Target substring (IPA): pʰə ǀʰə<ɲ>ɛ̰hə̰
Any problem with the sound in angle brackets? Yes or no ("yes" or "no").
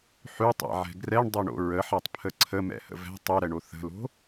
yes